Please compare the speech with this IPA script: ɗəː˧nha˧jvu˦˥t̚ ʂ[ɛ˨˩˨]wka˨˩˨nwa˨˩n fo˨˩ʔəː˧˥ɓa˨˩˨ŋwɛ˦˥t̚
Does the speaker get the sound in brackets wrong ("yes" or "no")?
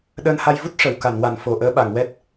yes